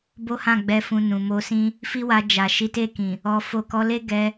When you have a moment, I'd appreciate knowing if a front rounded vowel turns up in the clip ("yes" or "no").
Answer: no